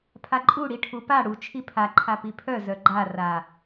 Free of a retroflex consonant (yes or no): no